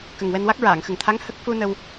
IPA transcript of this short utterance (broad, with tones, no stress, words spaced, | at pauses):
kə˨˩ŋ wɛ˧nwa˦˥k̚ ɹaː˨˩˨ŋxə˨˩ŋt̪ʰa˧˥ŋ hə˦˥k̚ fu˧ nə˧w